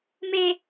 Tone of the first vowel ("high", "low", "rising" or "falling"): high